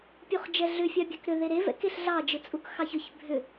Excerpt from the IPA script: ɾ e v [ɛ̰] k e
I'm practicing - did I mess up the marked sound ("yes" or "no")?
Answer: no